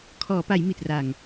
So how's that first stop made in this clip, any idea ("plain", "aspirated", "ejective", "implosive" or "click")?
aspirated